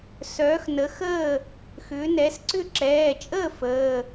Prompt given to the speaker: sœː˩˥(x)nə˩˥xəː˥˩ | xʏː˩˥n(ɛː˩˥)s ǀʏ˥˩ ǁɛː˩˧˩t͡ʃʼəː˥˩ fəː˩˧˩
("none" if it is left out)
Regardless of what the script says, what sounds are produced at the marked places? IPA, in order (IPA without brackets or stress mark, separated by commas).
x, ɛː˩˥